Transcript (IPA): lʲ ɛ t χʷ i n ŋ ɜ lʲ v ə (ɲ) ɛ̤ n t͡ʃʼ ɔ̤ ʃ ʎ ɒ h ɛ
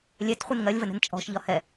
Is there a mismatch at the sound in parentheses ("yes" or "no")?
yes